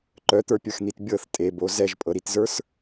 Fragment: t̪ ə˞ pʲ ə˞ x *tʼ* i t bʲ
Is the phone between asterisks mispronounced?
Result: yes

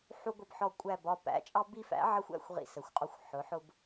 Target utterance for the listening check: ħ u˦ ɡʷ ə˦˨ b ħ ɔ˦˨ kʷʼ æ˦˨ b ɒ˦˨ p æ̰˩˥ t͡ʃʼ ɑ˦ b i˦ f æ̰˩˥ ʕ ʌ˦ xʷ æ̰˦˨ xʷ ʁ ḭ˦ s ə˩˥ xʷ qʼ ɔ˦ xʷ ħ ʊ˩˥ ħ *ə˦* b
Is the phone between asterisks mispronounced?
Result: yes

